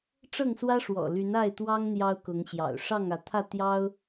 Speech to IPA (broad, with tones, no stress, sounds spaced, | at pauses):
ʈ͡ʂ ɤ˥˨ ŋ s w ä˦ ʂ w ɔ̰˨˩ l y˨˦ n a˥˨ ɪ̯ t̪ w ɑ˦ ŋ n̪ j ɑ˦ ʊ̯ k ʊ˨˦ ŋ ɕ j ɑ̰˨˩ ʊ̯ ʂ ɑ˥˨ ŋ ä˨˦ t̪ʰ ä˥˨ t̪ j ɑ˦ ʊ̯